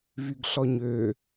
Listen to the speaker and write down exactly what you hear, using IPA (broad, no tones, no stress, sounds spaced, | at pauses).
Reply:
v y ɡ ɬ ɔ ɲ ø